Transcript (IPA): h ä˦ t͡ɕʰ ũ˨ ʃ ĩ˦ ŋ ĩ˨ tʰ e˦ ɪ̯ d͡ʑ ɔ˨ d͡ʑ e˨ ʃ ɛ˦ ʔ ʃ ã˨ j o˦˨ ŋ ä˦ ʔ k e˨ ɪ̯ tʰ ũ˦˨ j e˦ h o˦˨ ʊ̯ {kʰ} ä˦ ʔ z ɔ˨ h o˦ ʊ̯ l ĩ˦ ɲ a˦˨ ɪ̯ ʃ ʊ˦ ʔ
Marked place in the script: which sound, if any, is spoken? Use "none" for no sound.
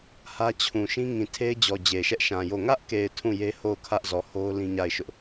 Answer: kʰ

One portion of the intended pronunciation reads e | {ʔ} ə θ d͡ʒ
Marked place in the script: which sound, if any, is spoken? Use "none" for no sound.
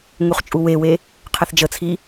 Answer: qʰ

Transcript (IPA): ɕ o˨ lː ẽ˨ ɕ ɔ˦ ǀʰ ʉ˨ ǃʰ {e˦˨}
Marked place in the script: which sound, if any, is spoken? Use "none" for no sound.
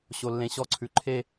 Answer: e˦˨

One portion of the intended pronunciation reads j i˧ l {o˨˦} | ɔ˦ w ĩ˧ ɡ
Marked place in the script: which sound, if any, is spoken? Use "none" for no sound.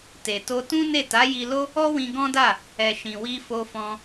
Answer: o˦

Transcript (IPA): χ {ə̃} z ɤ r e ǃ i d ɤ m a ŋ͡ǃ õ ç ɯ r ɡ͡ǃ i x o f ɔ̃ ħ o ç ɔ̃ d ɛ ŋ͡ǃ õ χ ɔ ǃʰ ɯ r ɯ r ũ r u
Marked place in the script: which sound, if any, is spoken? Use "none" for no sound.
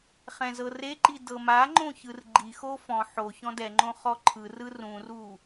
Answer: ɛ̃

